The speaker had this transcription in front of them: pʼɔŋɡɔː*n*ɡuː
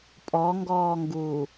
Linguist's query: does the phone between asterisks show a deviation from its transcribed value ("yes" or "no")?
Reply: yes